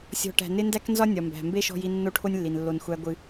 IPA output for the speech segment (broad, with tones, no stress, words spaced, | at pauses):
sʲɔ̤˥ʈæ̤˦ nɪ˥ ndæ˥knzɒ˥ nʲɒ˨mbæ̤˨ mbe˥ʃɔ̤˦ji˦ nːo˥ʈʰo˥nʲlːi˨n lːo˦nxʷæ˥ɡʷɨ˦